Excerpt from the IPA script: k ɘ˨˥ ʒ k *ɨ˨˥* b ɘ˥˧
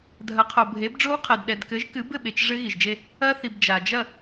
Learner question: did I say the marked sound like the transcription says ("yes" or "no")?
yes